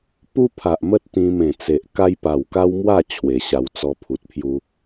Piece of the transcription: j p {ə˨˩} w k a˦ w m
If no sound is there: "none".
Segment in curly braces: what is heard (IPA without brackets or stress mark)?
a˨˩